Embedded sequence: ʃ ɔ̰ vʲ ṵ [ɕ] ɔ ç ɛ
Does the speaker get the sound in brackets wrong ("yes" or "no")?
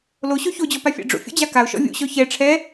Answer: no